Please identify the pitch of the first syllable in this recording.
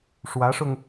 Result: rising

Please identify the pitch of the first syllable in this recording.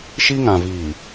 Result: high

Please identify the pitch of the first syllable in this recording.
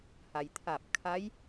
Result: low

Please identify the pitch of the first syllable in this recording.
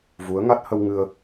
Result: rising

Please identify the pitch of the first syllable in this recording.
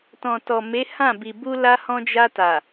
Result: low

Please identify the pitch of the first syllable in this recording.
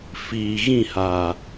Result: low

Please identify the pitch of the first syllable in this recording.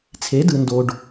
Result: rising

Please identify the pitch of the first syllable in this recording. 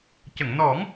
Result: low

